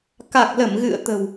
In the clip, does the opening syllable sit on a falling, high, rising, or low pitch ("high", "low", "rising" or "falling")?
low